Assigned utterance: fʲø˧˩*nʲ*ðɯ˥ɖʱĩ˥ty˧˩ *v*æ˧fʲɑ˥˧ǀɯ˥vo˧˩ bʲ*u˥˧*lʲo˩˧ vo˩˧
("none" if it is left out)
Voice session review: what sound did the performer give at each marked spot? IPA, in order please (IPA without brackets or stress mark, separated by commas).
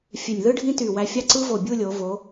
nʲ, w, u˥˧